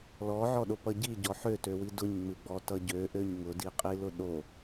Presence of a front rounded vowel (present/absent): present